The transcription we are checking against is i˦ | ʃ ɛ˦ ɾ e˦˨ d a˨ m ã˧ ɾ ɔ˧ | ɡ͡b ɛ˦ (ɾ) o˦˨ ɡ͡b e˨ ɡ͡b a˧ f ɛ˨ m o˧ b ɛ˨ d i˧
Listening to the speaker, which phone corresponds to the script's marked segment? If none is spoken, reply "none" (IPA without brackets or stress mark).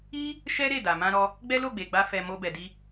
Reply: l